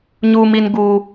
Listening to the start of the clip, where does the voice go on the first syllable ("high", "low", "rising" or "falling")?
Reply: high